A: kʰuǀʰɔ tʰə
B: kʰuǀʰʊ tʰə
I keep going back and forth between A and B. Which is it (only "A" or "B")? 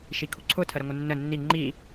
B